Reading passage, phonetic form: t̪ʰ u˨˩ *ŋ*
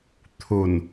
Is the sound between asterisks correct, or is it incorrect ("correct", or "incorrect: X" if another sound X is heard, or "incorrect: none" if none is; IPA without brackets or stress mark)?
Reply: incorrect: n